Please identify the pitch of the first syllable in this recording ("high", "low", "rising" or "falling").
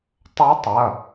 rising